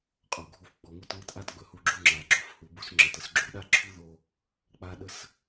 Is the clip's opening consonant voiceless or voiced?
voiceless